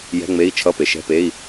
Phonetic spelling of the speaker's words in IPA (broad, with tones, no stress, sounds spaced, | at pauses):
j ɛ̤˧˥˧ ŋ͡m e˧˥˧ i̯ t͡ʃʰ ʌ˧˥˧ p e˩ ʃ ɛ̤˧˥˧ p e˧˥˧ i̯